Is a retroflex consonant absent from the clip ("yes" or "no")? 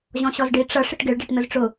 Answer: no